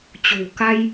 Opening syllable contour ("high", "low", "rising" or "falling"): low